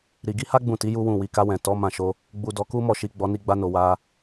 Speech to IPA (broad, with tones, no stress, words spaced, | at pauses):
ɾi˨ɡi˧ha˦ ɡ͡bũ˦˨ti˨˦ ju˦wũ˦˨ wi˨ka˧wɛ̃˨ tɔ˨˦ mã˦˨ʃo˧ | ɡ͡bu˧dɔ˧ku˦ mɔ˦˨ʃi˧ ɡ͡bɔ˧ni˧ɡ͡ba˧no˨ wa˧